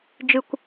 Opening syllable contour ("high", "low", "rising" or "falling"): high